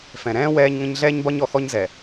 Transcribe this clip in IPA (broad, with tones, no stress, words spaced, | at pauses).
fɛ̃˨ɾɛ̃ː˦ wɛː˦ɲŋə̃˦ɲ ɮɛː˦ɲbɒ˦ɲɔ˨xɔ˦ɲ zɛ˨